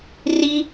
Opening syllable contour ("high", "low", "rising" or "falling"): high